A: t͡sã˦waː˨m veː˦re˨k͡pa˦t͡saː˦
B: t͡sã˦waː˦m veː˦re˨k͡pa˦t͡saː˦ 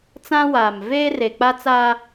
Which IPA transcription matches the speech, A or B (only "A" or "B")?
A